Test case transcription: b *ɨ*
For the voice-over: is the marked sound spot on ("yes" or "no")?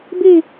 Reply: no